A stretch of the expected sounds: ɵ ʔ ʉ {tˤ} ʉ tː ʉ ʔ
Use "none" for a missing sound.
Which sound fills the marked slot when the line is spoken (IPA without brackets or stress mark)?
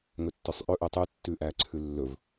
tˤ